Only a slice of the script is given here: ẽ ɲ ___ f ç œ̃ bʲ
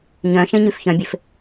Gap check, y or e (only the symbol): y